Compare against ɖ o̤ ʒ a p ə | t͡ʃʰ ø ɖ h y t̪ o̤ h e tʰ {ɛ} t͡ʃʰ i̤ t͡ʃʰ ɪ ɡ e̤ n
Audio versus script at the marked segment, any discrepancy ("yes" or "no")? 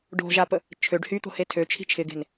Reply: yes